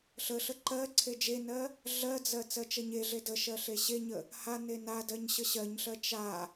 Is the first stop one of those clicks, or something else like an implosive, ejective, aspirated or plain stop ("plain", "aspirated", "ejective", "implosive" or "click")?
click